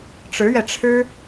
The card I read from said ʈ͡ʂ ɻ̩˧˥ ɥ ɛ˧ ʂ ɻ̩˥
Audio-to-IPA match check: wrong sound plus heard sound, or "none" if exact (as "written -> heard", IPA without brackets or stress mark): ʂ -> ʈ͡ʂʰ